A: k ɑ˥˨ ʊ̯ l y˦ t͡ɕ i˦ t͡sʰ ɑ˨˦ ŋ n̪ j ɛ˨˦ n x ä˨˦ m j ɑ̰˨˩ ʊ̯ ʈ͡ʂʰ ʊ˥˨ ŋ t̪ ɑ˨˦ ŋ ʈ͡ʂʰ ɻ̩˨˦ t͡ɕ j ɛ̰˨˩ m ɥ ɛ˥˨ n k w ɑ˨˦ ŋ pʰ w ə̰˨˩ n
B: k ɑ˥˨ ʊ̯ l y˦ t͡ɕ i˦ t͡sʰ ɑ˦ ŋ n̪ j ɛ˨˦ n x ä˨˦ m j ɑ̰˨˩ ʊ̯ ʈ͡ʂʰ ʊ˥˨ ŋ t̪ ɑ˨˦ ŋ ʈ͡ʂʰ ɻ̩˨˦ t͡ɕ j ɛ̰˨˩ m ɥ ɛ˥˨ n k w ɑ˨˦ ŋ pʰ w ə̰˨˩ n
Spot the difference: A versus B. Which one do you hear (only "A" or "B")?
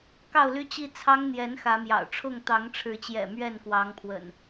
B